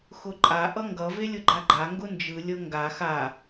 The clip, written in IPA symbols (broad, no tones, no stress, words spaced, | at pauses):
xʊǃʼa ʔʌŋɡʌ velʲʊɡ͡ǃaɡ͡ǃa ŋɡʊnd͡ʒɯ lʲɤŋɡa xa